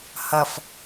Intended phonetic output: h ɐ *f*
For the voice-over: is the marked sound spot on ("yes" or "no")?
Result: yes